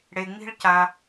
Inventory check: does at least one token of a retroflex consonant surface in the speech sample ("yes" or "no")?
yes